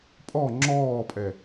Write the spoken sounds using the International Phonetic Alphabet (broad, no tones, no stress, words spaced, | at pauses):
pʼɔ ŋ͡ǁɔːpʼɛ